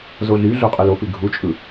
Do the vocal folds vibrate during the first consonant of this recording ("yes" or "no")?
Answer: yes